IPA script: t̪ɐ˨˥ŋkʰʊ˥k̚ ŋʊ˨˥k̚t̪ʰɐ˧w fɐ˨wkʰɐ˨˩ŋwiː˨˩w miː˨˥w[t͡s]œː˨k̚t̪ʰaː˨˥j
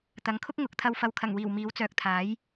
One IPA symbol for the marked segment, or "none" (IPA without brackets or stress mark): t͡s